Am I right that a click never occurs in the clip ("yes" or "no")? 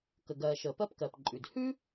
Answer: no